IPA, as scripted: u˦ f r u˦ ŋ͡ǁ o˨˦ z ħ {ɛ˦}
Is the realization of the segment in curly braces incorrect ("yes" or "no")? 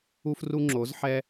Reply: no